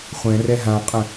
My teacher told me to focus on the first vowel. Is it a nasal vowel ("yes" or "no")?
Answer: yes